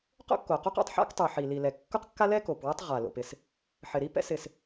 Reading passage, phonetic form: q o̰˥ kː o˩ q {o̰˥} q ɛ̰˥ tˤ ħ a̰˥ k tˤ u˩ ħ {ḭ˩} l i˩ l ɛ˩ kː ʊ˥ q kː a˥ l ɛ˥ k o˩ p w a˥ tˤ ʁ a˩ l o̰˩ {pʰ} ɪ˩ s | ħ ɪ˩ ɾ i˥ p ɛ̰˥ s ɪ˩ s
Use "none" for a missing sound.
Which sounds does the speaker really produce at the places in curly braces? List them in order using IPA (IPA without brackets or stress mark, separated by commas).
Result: o˥, i˩, p